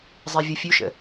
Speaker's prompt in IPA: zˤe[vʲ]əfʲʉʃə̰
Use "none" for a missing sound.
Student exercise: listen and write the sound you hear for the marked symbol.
vʲ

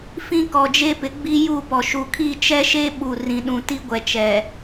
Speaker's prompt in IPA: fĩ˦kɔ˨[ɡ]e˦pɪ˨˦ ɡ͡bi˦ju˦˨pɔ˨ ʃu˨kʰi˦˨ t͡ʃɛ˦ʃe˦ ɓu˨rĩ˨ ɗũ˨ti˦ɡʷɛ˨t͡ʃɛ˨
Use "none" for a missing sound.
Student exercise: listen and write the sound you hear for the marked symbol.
d͡ʒ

